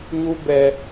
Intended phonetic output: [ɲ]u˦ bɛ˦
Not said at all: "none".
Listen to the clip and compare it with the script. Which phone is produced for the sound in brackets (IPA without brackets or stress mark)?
ɲ